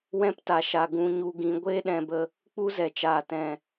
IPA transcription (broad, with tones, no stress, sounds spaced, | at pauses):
w ɛ̃˦ p t a˨ ʃ a˨ ɡ ũ˧ ɲ u˧ ɡ ĩ˧ ɡʷ eː˦ ɗ ɛ̃˧ b ə˧ | k͡p u˦ z ɛ˨ t͡ʃ aː˨ t ɛ̃˨